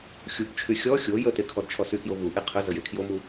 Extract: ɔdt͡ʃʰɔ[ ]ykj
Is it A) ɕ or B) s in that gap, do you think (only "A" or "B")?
B